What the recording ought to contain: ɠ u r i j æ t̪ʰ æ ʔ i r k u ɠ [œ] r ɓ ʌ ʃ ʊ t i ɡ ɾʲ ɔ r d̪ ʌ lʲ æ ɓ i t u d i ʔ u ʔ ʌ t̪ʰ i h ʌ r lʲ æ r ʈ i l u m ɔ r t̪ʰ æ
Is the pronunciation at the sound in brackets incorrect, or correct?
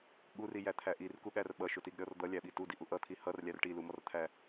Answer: incorrect